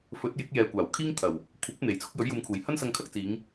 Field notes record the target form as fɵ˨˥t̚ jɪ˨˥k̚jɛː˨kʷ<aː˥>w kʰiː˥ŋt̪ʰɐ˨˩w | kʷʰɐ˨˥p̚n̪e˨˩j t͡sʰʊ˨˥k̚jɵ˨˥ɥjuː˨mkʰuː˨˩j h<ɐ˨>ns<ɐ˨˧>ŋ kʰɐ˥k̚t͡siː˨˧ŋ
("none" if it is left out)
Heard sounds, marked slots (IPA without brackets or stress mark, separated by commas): aː˨˩, ɐ˥, ɐ˧